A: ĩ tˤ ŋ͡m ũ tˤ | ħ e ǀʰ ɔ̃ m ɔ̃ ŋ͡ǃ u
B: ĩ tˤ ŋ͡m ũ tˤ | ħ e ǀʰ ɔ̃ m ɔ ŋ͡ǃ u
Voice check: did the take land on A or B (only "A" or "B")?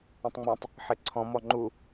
B